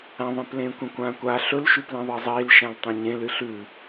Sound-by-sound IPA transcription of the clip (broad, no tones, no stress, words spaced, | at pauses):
ãðˤẽplẽː kʷẽkʷãːkʷaː ɬɵlʃʉ plẽðˤezˤiːl ʃãltˤõɲẽ lɨɬʉ